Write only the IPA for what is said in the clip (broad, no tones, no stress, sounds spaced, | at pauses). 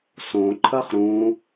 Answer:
s õ ǃʰ ɐ χ ɾ ũ